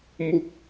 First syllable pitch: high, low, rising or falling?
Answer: falling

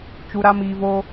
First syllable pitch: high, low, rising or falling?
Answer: low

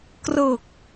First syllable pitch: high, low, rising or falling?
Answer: low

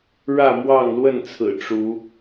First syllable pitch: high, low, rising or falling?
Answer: falling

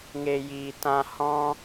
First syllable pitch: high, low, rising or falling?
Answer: low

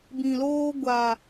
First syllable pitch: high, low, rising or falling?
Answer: low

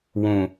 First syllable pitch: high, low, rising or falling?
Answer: low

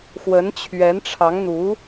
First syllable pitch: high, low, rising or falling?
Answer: rising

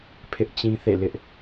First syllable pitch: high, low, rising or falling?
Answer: high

